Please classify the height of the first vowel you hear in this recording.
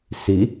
high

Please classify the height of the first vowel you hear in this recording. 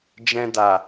mid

